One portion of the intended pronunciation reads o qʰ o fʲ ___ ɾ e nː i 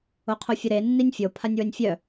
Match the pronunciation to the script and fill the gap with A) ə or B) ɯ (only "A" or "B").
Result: A